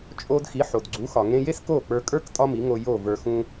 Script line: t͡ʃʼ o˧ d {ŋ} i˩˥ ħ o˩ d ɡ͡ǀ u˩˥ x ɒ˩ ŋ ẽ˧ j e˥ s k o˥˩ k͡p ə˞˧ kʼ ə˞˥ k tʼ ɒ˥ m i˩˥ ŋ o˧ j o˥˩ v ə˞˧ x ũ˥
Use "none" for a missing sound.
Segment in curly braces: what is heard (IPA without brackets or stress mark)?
x